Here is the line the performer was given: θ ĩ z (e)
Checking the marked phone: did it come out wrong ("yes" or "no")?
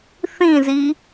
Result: yes